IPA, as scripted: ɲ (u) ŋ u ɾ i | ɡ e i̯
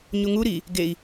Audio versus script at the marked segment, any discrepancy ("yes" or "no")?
no